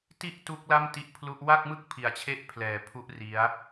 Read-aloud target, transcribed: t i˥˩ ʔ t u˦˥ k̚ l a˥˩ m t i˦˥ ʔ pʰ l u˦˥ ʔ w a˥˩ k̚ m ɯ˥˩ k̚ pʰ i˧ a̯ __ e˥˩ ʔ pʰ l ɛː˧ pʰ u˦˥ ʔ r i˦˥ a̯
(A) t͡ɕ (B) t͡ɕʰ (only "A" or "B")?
B